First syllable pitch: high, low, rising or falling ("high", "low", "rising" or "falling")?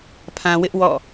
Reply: low